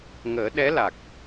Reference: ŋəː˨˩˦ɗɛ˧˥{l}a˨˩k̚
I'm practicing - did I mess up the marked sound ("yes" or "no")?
no